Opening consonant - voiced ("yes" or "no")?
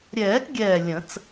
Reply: yes